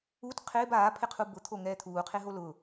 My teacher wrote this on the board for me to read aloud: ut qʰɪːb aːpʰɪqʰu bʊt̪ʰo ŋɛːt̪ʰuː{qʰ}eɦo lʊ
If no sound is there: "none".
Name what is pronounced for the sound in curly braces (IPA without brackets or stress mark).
qʰ